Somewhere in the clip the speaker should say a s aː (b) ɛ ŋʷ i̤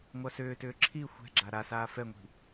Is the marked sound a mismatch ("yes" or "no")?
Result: yes